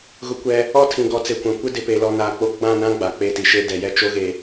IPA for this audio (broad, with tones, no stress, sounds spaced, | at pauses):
ɣ ʊ˦ kʷ ɛ˦ | ɔ˦ tʰ ĩ˨ ɡ ɔ˨˦ t͡s e˨ kʷ ã˨ kʷ ɪ˦ d ɪ˨ p e˨ l ɔ˨ n a˨ k͡p o˦ ɡ͡b ã˦˨ n ã˦ ɡ͡b a˨ k͡p e˦ t i˨ ʃ e˦ d ɛ˨ j ɛ˦ t͡ʃ o˦ ɣ e˨